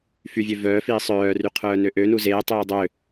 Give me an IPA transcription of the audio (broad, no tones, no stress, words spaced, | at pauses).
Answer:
fyvʲø vœːfiː sˤœːry qʰœːnøʔønu zeːtˤœː dˤø